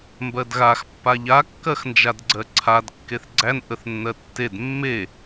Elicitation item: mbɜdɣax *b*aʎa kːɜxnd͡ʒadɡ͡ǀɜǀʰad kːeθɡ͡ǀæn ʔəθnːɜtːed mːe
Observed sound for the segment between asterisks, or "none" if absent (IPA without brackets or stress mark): pː